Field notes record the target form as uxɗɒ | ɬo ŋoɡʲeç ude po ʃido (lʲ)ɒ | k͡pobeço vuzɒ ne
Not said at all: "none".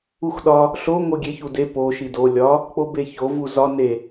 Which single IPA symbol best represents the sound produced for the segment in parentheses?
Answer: lʲ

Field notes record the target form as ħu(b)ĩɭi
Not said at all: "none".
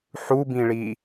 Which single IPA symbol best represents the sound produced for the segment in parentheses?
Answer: b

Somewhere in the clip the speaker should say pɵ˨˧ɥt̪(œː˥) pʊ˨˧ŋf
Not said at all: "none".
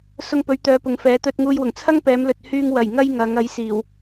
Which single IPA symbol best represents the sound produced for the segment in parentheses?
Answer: œː˨˧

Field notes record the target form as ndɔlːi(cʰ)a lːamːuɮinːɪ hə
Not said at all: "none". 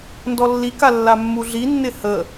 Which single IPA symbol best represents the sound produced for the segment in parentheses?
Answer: k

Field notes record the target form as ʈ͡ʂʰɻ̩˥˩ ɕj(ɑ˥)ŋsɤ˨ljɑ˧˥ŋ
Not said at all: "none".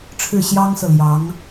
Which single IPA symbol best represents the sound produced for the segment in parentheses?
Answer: ɑ˥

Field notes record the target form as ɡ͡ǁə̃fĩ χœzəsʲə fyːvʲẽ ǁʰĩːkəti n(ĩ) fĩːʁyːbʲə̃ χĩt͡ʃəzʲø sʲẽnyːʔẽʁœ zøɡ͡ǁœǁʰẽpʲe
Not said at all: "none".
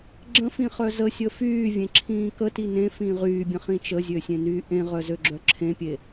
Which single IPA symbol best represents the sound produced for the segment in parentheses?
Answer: ẽ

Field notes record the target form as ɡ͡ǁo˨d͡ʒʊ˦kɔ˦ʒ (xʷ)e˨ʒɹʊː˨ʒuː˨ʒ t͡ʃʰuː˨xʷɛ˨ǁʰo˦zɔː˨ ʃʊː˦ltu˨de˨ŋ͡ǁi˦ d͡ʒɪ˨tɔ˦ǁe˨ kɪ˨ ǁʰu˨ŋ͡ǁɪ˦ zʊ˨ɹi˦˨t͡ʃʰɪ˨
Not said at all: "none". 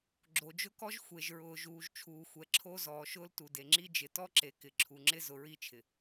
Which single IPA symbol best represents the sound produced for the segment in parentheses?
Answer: xʷ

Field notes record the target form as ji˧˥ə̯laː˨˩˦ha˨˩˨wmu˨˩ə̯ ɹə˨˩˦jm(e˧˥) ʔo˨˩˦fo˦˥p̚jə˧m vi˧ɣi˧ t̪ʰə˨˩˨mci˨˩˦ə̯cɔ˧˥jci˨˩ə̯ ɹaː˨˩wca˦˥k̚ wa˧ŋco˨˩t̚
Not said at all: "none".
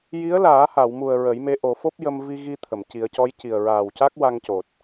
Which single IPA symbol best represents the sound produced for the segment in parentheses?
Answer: e˧˥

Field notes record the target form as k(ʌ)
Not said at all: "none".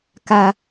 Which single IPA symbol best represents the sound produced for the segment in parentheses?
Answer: a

